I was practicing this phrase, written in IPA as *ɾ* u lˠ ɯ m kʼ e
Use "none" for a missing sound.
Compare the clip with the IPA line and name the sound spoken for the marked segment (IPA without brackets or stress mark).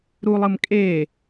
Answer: ɾ